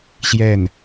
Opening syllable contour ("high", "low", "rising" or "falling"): falling